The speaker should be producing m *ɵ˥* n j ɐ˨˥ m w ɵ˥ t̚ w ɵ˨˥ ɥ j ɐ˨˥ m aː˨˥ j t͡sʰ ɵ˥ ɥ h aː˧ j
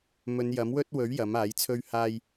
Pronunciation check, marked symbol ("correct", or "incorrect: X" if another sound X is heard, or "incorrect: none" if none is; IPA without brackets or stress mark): incorrect: ɵ˨˧